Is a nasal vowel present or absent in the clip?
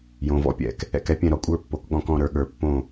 present